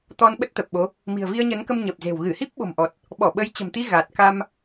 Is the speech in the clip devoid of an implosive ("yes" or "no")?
no